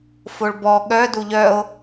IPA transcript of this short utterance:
foɭbɔ ɠœ duʎœo̯

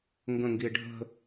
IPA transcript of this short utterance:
ŋɡə̃ŋɡie̯ ɖʱə̤

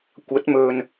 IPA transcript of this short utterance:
kʷɐ˨˥t̚mɵ˨n

